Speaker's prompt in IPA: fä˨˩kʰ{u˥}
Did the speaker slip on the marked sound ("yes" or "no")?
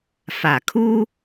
no